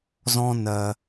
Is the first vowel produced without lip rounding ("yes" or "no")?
no